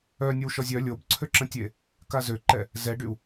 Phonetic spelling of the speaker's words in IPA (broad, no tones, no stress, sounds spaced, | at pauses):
œ nʲ ə w ʃ ɔ zʲ œ lʲ o b ǀʰ ø ǁ ə̃ tʲ e | k a z ø ǃ ɛ | z ɛ ɖ y u̯